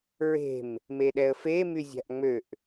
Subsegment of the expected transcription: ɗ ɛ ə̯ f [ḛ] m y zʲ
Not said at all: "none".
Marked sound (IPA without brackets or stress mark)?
e